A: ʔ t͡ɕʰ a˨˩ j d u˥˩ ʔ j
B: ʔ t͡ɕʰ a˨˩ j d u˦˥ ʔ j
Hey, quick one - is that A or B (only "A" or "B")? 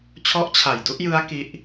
B